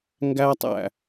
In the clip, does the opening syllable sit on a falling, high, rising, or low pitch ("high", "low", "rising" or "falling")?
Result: high